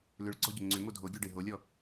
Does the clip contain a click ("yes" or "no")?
yes